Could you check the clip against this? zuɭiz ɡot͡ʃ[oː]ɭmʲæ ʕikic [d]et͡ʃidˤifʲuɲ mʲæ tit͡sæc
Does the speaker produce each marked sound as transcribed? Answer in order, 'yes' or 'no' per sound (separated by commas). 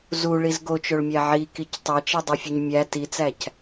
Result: no, no